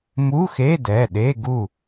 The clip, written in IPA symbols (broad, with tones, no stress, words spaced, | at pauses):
mu˧˥˧xe˧˥˧dɛ˩˧˩ ɗe˧˥˧ɡu˥˨